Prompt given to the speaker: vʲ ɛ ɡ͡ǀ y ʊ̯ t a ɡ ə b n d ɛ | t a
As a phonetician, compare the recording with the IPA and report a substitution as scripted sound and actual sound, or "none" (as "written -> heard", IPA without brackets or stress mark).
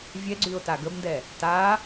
none